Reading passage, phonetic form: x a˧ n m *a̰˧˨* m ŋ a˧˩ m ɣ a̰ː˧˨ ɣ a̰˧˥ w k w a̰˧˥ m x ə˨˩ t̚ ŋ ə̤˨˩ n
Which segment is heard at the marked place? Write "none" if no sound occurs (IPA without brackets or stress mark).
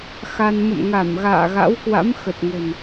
ə̰˧˨